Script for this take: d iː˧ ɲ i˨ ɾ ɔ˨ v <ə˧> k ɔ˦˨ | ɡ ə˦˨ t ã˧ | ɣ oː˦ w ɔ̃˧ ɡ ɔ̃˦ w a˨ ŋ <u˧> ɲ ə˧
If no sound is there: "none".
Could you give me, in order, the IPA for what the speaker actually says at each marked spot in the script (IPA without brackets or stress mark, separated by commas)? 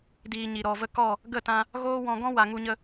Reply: ə˧, u˧